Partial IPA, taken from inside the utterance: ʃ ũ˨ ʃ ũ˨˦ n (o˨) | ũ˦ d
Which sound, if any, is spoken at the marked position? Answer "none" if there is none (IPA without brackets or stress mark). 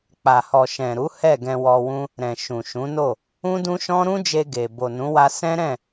o˦˨